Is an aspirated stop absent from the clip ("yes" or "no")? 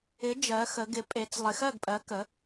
yes